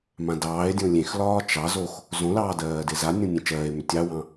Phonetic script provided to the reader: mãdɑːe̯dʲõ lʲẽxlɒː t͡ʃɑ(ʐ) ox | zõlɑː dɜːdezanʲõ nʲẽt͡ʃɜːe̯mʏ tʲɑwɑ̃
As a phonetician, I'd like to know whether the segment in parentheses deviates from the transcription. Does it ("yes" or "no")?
yes